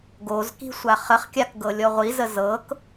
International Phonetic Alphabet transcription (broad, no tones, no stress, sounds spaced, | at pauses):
ɡ o z k i̤ sʷ a χ ə χ kʲ a k ɡ ɤ lʲ ɔ ʁʷ i z ə z ɤ k